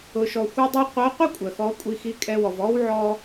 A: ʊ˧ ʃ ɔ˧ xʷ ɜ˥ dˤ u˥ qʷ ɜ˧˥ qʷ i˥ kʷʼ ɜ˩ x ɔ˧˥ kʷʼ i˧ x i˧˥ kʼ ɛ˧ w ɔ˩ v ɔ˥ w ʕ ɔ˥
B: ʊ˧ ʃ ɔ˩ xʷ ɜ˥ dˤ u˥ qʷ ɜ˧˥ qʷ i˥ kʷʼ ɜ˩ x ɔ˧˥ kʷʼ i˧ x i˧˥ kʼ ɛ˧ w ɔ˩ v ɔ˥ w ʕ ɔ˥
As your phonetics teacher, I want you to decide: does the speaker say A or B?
A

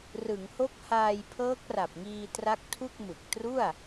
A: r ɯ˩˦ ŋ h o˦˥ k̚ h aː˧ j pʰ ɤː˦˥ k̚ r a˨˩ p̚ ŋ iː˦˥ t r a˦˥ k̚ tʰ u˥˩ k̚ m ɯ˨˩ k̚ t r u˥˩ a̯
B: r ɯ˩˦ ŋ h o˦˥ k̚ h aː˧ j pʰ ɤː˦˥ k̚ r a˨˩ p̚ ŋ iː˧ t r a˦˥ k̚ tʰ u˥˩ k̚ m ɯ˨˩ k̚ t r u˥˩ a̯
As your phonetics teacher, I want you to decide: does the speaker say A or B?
B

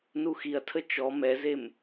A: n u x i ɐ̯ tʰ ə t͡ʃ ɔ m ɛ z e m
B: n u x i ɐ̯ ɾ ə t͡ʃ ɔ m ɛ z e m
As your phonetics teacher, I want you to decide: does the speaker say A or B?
A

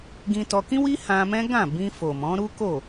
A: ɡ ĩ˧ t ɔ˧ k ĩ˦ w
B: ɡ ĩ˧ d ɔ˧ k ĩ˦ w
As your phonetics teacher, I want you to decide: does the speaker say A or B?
A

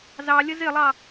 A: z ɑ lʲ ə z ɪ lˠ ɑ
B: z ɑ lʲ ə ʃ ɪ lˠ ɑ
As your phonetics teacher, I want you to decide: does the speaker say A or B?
A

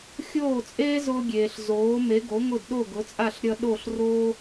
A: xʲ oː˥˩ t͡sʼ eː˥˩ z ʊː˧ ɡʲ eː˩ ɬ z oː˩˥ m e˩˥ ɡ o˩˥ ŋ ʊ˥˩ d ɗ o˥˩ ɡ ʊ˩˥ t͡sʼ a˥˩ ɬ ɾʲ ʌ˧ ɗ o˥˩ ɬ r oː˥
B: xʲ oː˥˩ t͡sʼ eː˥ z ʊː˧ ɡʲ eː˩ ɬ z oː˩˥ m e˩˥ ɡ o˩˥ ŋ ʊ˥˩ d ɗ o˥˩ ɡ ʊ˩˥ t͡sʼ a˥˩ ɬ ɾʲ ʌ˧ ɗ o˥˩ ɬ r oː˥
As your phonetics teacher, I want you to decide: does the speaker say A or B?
B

